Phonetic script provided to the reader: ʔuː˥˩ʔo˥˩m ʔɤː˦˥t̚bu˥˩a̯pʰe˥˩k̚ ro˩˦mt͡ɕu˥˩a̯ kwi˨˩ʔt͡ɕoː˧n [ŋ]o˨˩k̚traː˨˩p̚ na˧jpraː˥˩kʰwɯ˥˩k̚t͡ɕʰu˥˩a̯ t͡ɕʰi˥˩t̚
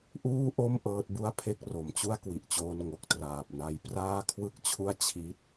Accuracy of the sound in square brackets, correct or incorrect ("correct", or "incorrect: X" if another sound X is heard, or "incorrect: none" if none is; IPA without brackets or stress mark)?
correct